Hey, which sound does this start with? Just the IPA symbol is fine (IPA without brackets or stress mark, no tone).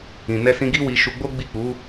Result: ĩ